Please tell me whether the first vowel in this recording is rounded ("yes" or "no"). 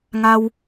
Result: no